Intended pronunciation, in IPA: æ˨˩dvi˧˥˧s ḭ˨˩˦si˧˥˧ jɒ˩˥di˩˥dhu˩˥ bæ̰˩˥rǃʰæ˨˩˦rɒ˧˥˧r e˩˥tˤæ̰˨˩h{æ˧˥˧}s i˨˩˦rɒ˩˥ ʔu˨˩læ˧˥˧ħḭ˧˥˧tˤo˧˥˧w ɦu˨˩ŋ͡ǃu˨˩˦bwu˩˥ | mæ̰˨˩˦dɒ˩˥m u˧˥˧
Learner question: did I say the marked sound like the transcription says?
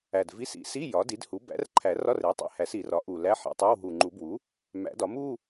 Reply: no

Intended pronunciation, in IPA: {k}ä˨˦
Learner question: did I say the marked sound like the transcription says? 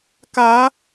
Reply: yes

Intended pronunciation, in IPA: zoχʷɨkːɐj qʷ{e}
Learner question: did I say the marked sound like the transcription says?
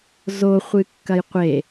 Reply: yes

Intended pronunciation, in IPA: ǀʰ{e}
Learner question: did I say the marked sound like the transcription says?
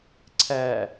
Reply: no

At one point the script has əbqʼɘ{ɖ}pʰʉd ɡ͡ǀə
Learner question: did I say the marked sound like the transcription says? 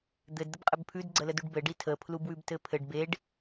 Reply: no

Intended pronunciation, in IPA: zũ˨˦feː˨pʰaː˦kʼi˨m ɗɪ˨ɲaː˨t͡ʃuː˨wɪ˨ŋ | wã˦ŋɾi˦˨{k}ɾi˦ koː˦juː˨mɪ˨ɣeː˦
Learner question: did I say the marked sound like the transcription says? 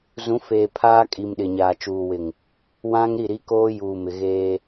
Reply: no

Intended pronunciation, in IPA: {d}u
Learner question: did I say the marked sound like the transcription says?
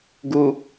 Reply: no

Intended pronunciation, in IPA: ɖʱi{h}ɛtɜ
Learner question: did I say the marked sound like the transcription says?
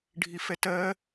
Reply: no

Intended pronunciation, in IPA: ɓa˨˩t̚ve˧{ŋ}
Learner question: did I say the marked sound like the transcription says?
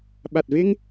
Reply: yes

